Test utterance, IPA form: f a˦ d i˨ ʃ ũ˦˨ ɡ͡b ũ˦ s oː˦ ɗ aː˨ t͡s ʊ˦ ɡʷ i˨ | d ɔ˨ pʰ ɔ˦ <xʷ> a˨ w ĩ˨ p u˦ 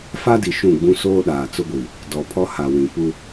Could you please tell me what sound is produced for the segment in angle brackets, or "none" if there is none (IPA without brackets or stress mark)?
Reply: h